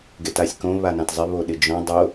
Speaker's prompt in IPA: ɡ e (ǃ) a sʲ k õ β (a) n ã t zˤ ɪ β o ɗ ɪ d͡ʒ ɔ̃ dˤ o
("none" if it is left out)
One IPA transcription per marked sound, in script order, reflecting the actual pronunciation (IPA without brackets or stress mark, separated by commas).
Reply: t, a